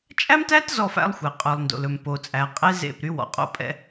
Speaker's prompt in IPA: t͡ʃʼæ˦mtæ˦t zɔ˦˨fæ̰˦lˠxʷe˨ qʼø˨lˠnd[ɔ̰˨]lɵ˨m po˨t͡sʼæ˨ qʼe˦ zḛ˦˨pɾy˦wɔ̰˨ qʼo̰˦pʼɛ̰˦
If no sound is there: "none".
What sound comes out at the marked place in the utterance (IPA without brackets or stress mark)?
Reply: o̰˨